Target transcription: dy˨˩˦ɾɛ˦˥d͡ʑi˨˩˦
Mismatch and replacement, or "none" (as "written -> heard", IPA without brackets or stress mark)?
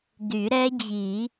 none